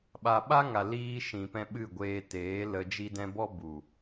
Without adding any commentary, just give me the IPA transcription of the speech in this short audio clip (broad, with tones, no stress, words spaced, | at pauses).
ɓa˨ɓa˦ŋa˨ liː˧ ʃĩ˨pɛ̃˧ɓɨ˦˨ɡʷeː˧ teː˨˦lə˧ d͡ʒi˧dɛ̃˧bɔ˦ bu˨